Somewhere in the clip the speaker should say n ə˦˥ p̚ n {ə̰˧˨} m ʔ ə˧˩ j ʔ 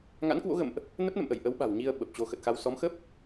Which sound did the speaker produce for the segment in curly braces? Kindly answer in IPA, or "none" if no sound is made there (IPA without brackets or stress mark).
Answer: ə̰˧˨